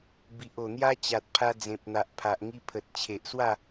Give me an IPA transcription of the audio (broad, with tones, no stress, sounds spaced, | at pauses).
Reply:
b i˨ ʔ o˨˩ n̪ j a˦ t͡ɕ a˨ t̚ pʰ a˧ d͡z ẽ˨ p̚ n̪ a˨ ʔ pʰ a˨ ʔ ŋ i˧ pʰ ə˨ t̚ t͡ɕʰ e˨ ʔ s w a˥˧